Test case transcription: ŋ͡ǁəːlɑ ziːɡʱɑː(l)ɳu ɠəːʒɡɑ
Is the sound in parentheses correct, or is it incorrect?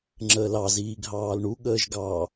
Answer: correct